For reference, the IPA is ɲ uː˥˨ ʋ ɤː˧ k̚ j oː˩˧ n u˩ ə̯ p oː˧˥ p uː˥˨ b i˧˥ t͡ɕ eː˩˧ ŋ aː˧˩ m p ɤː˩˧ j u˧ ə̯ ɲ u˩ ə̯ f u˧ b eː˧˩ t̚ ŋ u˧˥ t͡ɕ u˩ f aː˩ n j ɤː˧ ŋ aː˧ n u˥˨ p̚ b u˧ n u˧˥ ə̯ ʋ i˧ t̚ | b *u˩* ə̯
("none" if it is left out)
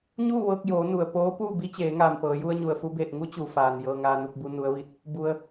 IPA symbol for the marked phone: u˧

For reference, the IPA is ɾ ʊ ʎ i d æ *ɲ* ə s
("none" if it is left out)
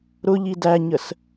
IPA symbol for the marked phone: ɲ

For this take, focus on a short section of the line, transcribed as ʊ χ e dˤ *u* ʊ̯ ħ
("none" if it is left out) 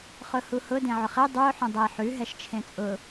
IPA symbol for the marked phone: ʉ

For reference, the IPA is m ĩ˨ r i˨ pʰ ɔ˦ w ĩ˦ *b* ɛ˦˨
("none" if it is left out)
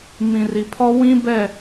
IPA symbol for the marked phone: b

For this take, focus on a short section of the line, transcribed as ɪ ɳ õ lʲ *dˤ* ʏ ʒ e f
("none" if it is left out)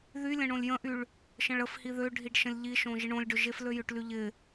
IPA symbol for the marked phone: ɖ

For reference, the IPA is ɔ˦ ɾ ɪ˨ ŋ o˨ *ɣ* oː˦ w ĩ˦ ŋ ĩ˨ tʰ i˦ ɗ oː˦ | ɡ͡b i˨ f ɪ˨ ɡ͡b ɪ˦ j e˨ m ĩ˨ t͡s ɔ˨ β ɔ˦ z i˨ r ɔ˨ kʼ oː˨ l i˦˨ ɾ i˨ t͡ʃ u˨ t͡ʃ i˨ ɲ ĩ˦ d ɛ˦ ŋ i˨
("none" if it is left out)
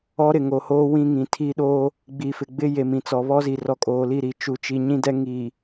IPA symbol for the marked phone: h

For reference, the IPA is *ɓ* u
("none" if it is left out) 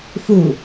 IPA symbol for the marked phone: f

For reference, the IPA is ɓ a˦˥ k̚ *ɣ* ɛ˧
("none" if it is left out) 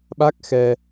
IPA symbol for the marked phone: x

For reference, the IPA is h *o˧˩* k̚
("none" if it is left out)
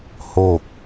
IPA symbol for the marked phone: o˥˨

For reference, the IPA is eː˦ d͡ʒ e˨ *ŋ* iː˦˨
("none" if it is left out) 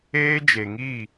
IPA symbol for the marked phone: ŋ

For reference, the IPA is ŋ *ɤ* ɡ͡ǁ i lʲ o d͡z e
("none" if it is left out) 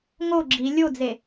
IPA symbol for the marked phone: o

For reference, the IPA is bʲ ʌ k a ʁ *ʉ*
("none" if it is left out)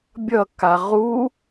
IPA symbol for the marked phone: u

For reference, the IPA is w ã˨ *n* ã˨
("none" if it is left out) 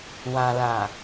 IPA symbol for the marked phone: l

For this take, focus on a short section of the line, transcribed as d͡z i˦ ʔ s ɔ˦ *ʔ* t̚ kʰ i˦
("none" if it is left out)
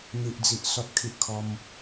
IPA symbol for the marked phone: none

